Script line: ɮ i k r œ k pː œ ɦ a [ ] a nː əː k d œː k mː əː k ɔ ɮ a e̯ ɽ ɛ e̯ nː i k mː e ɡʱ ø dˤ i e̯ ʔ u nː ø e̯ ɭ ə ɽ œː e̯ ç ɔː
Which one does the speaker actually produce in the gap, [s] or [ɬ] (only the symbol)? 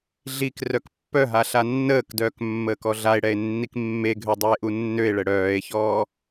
ɬ